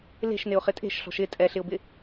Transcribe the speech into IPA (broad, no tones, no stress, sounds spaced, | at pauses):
l e̤ ʃ n ɪ ʊ̯ χ ɪ tʼ e̤ ʃ ɬ ɔ̤ ʃ ɪ tʼ ɛ ɬ ɪ ʊ̯ b ɪ